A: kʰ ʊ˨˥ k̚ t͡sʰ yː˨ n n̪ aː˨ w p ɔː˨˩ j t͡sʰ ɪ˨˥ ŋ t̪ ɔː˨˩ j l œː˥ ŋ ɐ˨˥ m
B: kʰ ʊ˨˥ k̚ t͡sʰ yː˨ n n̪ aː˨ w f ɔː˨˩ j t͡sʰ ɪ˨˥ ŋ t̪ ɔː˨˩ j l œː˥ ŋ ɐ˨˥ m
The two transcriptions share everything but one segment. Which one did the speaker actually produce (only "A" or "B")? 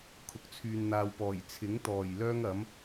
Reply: A